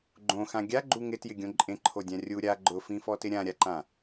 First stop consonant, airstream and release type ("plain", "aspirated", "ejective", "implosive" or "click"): click